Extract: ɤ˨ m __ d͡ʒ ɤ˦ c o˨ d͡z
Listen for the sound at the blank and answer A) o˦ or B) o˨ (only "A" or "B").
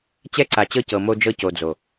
A